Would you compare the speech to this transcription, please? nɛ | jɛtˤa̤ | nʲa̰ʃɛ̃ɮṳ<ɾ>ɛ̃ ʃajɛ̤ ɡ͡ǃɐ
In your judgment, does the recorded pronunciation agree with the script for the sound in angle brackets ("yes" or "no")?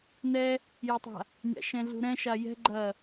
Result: yes